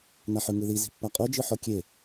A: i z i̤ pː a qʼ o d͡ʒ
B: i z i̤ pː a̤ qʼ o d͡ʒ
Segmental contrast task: A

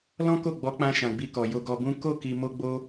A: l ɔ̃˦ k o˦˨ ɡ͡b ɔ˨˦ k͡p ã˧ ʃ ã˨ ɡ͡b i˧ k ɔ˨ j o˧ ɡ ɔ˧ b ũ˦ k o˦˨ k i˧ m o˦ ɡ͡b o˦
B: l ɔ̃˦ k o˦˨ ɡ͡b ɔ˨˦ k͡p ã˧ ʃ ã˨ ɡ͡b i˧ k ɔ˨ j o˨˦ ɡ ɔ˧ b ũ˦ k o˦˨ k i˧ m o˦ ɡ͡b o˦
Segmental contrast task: A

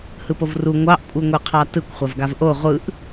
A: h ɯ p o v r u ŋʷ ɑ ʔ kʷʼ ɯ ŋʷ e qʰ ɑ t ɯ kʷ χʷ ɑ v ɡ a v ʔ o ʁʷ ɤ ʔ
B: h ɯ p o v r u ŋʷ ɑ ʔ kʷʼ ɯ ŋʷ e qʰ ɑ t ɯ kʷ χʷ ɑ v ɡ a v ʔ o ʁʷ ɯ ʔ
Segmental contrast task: B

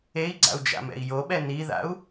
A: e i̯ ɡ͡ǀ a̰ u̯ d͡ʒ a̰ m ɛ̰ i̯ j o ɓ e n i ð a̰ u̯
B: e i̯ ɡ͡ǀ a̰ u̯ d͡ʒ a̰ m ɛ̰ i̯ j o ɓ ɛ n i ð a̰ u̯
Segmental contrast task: B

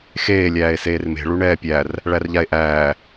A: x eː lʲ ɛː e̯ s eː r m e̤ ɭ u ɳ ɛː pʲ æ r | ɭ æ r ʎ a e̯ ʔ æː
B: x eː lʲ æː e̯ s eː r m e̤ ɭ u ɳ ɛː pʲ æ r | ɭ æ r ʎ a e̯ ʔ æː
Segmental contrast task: B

